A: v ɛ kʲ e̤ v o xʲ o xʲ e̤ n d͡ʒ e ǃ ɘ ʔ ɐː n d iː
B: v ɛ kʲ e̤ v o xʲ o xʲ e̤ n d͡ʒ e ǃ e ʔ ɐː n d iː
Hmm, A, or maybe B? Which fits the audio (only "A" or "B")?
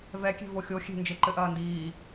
A